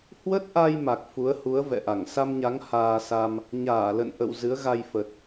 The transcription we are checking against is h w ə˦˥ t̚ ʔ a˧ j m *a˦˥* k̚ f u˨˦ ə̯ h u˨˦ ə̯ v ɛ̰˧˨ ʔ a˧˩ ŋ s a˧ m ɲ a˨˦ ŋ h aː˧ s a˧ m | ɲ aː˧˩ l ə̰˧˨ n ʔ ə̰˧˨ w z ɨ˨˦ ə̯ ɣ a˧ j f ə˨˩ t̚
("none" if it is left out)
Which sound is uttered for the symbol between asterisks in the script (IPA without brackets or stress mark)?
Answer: a˨˩